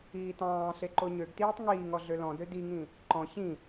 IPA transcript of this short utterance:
iː t ɑ̃ː ɬ e ǃ o ɲ ø ɡ t iː tˤ ŋ iː ŋ ɔ ɮ ø l ɔ̃ d ø d i ŋ ĩ | ǃ ɔ̃ ç ĩ

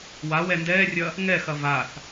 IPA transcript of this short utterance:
w a w ɛ n d ɛː rʲ ɐ | ŋ ɛ x ɐ v a θ

